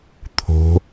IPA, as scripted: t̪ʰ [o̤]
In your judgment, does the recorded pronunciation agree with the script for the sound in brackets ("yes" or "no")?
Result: yes